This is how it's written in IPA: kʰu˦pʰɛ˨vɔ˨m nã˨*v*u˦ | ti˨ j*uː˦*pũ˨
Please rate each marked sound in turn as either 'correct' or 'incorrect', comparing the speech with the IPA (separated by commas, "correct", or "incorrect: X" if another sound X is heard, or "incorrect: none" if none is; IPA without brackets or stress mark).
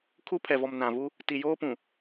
correct, incorrect: oː˦